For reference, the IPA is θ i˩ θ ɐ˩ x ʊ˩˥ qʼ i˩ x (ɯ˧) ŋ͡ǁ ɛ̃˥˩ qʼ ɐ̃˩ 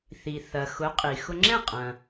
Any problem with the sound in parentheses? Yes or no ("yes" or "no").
yes